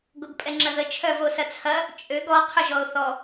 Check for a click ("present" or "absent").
present